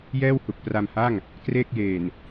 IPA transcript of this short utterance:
jɛː˥˩whu˨˩k̚pra˧mha˥˩ŋ | kreː˥˩k̚jeː˨˩n

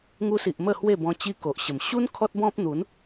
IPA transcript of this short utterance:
ŋu˧si˨ʔ mə˥˧hwe˥˧bɔ̃˧ t͡ɕi˧ ko˨ʔɕə˨˩m ɕu˦n kʰɔ˦t̚bɔ̃˦p̚n̪u˨˦n

